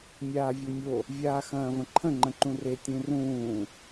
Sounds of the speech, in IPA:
mʲaːvʲomʲo | vʲaːxɐ̃ːvə̃ǃʰə̃ ŋ͡ǃə̃ǃũre tʲũrũː

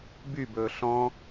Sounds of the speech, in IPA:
bybɵː ɬɔ̃

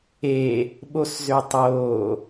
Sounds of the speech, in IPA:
e | ɓoszøtˤoː

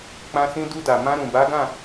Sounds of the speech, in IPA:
k͡pã˧sĩ˧ du˧da˨ mã˧ɾũ˨ba˨˦ɡã˦˨

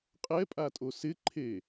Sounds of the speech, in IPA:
qʼɛpʼatʼo sɪǃʰe

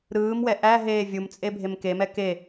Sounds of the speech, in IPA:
ɾɯːmwɛ ʔæ ɦeːvʲumt͡sʼe bʱemkemɛ ke

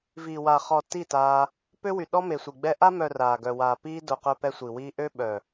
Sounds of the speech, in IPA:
viː˨wa˨χɔ˨ ti˦˨taː˧ | pø˦wy˨ ɗɔ˦me˨sʷi˨ ɡ͡bɛ˦ ʔa˧mœ˨ raː˨ɡœ˨waː˨ piː˦do˧ qœ˧pɛ˧sʷi˨wiː˧ ʔø˦ ɓœ˨

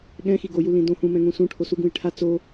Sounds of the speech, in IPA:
ɠɛ̃ xiɡoju lĩdõ hũmɛ̃ ŋũsũ ʈʰosuɡũjʈʰa t͡so

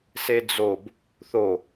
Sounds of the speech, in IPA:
sed͡zob | θo

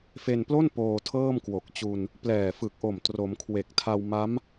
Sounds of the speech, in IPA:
fe˧nplo˥˩n poː˧tʰɤː˥˩mkwo˨˩k̚t͡ɕu˧n | plɛː˨˩fɯ˨˩k̚ʔo˨˩m tro˩˦mkʰwe˨˩k̚tʰa˧wma˦˥m

